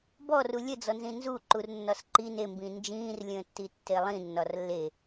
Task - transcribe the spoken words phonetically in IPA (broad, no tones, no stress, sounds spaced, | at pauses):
b ɔ r u lʲ ə d͡z ɔ n z ĩ n z u ǃ u r nː ɒ s ǃ i n e m b ĩː n d͡ʒ ĩː r lʲ ə̃ː tː i tː e lˠ ĩ nː ɒ r lː e